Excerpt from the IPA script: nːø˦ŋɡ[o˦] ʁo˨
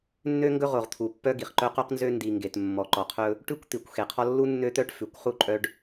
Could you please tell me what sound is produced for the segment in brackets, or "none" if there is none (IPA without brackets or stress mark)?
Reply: ɵ˦